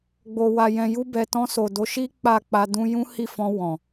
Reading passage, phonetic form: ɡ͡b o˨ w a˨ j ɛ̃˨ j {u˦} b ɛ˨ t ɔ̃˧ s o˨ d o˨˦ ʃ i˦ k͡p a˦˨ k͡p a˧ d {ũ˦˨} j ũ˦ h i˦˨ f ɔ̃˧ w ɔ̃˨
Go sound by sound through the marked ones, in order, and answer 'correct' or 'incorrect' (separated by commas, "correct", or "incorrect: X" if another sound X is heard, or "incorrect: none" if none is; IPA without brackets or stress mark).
incorrect: u˧, incorrect: ũ˧